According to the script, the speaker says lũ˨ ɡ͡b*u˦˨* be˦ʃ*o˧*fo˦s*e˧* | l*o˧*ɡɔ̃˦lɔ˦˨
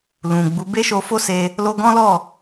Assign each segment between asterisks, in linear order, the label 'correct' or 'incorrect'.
incorrect: u˨˦, correct, correct, correct

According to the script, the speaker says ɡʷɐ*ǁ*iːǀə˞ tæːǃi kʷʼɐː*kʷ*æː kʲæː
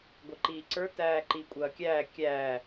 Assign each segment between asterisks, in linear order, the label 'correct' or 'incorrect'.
incorrect: ǃ, incorrect: kʲ

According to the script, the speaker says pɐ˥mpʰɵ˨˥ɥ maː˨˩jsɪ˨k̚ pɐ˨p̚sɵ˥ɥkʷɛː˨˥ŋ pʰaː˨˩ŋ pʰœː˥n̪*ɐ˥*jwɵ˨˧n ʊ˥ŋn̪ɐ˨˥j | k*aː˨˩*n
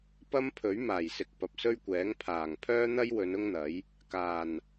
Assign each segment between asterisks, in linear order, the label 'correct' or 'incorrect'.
correct, correct

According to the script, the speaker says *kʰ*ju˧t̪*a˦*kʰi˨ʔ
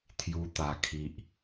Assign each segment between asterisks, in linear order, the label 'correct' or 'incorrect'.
incorrect: t̪ʰ, incorrect: a˨˩

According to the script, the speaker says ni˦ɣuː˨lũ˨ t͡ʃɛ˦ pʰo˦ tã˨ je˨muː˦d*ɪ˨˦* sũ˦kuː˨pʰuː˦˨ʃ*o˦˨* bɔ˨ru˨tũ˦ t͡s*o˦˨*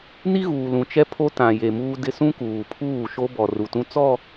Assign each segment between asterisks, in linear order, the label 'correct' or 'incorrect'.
incorrect: ɪ˦, incorrect: o˦, incorrect: ɔ˦˨

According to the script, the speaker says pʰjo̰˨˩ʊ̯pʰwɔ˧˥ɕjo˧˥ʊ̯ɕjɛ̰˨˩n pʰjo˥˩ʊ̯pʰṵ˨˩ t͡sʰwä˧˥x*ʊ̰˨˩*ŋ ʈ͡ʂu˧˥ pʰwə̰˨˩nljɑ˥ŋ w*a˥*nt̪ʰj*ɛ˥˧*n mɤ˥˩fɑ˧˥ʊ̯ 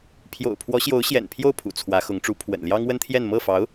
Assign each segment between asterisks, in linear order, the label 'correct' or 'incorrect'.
incorrect: ʊ˧˥, incorrect: ə˥, correct

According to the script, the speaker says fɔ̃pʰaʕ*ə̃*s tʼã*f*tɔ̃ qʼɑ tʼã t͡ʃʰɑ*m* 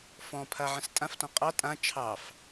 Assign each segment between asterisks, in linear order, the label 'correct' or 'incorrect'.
correct, correct, incorrect: f

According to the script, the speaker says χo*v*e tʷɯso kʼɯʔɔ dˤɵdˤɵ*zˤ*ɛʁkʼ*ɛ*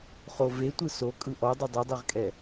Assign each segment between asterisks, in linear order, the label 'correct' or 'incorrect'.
correct, incorrect: dˤ, correct

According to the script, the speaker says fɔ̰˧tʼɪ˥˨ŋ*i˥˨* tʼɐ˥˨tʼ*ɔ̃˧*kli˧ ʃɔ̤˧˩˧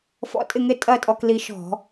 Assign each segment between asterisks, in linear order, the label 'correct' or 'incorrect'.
incorrect: ɪ˥˨, incorrect: ɔ˧

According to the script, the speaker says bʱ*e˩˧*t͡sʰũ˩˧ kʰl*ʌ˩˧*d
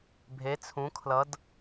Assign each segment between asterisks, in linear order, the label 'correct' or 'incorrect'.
correct, correct

